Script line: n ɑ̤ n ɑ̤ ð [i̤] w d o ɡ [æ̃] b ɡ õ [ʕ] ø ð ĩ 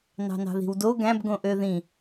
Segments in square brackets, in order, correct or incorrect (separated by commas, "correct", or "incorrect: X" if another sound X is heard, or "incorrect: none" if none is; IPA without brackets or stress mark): correct, correct, incorrect: ʔ